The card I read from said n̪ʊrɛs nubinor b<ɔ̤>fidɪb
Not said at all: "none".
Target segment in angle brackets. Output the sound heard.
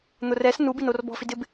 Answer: ɔ̤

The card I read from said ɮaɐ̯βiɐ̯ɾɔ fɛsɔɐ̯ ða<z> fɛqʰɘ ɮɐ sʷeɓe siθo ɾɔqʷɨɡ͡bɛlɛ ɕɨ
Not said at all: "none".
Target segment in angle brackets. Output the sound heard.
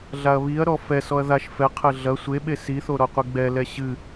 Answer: ʃ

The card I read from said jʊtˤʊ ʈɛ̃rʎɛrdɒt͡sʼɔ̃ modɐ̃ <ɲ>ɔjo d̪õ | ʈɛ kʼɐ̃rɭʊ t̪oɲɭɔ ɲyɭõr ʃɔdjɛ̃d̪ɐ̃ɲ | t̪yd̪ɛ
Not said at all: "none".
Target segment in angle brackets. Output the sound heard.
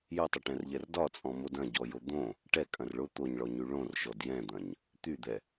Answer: ɟ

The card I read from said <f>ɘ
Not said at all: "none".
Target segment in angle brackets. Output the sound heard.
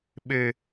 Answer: ɓ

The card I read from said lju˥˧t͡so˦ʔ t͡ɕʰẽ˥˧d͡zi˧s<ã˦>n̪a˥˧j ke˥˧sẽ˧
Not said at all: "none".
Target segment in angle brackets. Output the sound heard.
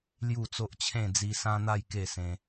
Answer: ã˦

